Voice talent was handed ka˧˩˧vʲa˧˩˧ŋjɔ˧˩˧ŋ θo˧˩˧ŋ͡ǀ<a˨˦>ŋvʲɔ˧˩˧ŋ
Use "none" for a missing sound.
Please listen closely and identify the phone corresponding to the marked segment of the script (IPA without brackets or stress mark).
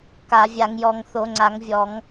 a˧˩˧